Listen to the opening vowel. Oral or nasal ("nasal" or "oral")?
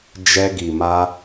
oral